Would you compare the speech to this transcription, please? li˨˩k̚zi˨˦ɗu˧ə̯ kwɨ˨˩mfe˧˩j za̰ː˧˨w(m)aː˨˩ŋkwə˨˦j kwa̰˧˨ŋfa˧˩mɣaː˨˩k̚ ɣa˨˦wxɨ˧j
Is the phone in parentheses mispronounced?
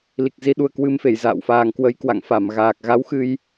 yes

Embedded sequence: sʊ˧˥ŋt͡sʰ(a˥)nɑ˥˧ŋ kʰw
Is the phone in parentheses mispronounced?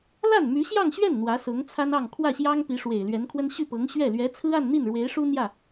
no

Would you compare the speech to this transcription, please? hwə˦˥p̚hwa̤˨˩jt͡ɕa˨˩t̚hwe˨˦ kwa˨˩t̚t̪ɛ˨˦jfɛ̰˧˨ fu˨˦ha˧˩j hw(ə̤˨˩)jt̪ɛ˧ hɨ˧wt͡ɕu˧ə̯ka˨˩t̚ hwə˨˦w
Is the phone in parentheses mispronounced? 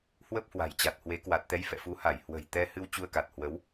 no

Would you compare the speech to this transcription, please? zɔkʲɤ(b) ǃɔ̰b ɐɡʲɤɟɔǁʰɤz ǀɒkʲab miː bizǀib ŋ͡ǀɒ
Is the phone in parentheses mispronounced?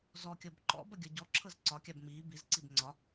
no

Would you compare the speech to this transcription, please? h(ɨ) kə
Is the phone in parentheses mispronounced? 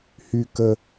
yes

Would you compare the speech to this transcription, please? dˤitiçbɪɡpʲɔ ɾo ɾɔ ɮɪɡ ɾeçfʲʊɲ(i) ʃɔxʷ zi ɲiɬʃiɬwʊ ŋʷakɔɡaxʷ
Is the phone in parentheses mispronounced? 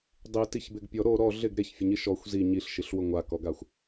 no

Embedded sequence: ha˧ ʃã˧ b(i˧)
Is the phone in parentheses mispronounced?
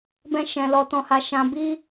yes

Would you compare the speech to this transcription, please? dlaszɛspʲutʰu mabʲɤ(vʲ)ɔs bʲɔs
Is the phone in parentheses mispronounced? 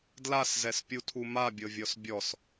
no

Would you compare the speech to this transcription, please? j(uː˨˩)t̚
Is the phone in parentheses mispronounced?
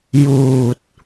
no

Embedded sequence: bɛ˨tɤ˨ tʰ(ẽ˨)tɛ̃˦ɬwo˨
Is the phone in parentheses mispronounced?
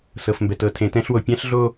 no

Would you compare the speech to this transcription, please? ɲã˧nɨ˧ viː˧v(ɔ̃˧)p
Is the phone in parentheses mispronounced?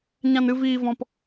no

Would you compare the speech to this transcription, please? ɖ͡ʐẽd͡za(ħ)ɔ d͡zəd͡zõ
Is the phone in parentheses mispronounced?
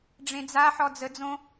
no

